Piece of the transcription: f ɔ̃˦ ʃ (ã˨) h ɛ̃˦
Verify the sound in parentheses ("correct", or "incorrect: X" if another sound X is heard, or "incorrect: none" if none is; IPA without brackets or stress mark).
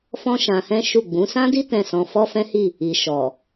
incorrect: ã˧